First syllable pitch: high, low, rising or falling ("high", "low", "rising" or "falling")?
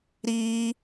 high